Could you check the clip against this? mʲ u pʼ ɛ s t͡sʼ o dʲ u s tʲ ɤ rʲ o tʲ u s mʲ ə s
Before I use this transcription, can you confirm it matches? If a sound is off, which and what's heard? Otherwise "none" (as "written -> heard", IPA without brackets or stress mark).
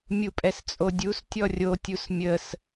ɤ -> ɔ